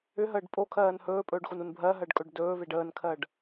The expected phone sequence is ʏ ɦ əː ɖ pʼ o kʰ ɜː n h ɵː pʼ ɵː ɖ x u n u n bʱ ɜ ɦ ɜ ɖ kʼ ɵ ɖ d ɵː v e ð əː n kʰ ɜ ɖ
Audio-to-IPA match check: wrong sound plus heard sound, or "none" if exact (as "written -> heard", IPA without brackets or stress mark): ð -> ɖ